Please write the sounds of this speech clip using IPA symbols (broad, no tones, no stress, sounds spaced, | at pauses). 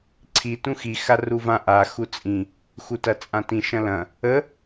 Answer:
ǀʰ i t ũ x i x a r u v ã ʔ a x u t͡sʼ ĩ | x u t ɐ t͡sʼ ã t ĩ ʃ ɐ̃ l ɐ̃ | ə